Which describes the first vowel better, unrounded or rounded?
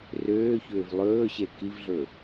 rounded